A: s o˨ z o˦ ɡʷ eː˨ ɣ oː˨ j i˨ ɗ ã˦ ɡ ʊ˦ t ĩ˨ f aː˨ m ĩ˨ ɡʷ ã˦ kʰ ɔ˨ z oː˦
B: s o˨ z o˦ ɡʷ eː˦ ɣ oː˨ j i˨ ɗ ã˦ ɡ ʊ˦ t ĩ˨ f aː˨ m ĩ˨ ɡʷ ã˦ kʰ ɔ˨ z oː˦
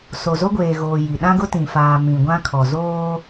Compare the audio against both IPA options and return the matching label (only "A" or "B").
A